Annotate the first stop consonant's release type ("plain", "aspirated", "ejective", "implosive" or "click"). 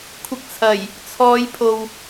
aspirated